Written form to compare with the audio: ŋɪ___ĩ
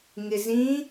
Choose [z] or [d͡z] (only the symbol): z